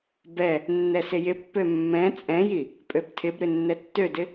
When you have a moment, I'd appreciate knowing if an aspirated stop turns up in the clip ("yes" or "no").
yes